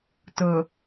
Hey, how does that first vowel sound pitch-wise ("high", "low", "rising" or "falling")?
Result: low